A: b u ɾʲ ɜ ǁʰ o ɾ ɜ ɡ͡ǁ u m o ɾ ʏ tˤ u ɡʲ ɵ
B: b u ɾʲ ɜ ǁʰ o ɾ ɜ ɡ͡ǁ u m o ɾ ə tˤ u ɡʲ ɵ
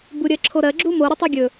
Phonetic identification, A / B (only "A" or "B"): A